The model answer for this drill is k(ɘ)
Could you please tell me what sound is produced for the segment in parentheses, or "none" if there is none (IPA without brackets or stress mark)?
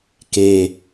e